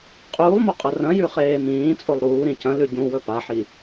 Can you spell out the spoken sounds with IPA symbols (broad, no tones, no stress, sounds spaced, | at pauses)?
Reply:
qʼ uː lˠ m o qʼ ɐ r ɐ̃ j ʉ χ eː m ĩː t͡sʼ o lˠ ɾ uː ɾ ĩ c ɐ̃ l ʉ ɟ ũ w ɵ p a ħ i